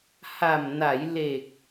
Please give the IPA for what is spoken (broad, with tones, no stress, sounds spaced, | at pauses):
h a˨˩ m n a˩˦ j l e˨˩ k̚